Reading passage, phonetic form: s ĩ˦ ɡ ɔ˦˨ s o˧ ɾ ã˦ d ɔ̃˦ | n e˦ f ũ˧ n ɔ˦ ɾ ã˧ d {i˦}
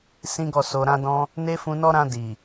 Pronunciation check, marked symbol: incorrect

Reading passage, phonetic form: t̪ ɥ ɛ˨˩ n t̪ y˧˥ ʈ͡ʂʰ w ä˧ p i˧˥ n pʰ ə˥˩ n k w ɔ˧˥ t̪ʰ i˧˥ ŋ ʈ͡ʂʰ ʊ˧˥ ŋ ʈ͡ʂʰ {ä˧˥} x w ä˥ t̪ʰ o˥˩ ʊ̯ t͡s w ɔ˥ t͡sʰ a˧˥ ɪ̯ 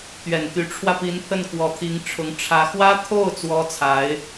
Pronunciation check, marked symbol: correct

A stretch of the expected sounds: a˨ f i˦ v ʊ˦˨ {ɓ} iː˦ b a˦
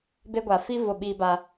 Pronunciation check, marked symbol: correct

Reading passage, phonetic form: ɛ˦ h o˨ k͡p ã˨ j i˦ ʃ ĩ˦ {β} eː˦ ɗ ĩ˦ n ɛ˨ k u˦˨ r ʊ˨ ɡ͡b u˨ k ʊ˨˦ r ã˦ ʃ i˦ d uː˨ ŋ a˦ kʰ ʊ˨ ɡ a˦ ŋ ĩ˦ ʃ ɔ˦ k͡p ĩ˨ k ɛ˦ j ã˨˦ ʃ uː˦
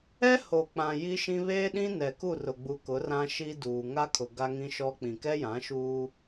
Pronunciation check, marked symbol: correct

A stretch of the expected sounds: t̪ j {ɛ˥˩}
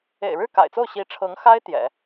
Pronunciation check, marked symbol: incorrect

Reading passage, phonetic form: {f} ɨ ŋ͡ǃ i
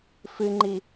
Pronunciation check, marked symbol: correct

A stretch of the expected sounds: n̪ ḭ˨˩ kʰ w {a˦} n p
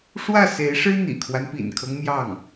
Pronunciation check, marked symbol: correct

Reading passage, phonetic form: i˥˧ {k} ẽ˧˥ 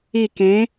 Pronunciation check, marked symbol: correct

